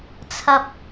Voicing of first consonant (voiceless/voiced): voiceless